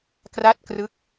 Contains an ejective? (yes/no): no